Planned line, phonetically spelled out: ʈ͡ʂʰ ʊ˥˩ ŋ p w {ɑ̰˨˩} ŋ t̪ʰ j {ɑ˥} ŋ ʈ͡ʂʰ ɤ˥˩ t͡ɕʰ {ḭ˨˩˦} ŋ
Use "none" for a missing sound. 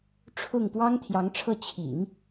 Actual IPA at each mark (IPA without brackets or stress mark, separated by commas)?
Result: ɑ˥, ɑ˧˥, ḭ˨˩˦